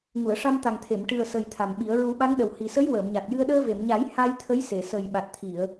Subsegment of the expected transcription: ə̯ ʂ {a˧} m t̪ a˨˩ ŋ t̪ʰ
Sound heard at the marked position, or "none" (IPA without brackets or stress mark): a˧